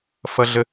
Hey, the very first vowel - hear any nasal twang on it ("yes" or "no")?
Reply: no